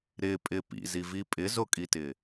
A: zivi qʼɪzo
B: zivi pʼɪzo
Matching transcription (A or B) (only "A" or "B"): B